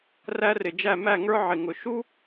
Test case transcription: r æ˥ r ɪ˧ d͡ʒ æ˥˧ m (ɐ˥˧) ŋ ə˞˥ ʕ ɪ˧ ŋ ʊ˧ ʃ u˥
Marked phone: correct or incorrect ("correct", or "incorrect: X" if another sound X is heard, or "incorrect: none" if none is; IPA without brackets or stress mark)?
incorrect: æ˥˧